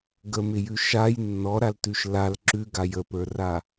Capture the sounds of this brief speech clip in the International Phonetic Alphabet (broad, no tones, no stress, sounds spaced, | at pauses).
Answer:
ɡ ə m ɪ j ʉ ʃ a j nː ɔ ɾ a l t ʉ ʃ l a l ǁ ʉ ɡ a j ə p ə˞ r a